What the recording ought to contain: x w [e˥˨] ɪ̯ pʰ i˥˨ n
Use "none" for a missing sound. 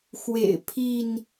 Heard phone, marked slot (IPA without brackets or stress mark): ḛ˨˩